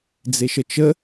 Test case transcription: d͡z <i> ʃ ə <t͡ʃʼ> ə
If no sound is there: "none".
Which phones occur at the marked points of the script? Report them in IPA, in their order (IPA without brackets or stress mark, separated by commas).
e, t͡ʃ